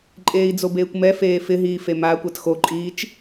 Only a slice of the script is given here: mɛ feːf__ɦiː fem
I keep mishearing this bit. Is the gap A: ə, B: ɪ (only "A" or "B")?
B